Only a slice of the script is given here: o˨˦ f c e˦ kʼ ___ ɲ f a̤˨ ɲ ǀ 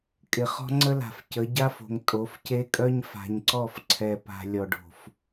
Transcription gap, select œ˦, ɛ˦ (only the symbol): œ˦